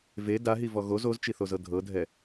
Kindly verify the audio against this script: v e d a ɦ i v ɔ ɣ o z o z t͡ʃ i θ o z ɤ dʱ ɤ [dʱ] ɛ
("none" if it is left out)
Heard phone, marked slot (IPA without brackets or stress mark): dʱ